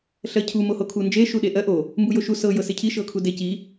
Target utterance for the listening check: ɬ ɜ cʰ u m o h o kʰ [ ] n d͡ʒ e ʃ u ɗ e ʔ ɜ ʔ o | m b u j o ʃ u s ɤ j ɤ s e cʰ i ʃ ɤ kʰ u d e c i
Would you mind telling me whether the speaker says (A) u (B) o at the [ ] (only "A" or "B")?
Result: A